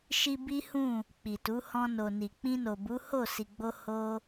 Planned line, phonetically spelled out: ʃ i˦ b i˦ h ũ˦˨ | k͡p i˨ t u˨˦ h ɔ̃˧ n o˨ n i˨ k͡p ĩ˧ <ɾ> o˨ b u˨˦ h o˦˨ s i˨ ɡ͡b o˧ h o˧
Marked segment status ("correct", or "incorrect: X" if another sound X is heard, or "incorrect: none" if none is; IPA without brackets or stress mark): incorrect: n